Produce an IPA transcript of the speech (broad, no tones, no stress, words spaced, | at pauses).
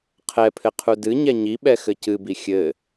qʰɛpʰɘ qʰudɨɲɛ ɲiɓɛ xɘcɨbi xʲɘ